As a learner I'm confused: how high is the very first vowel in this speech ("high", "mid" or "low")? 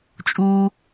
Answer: high